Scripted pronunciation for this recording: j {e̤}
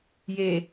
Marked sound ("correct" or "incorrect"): incorrect